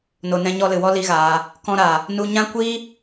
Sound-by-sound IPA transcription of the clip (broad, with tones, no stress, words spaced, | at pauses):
no˨nɛ̃˧ɲɔ˧ lɨ˨wɔ˦ li˦ɣaː˧ | kɔ̃˧ɾa˨ | nu˧ɲã˦kʷiː˦